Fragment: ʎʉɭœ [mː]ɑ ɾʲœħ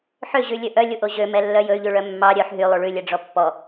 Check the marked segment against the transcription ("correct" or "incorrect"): correct